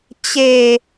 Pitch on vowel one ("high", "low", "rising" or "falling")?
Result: low